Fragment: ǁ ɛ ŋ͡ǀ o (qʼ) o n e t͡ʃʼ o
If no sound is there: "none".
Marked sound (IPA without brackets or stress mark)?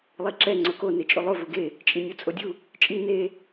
k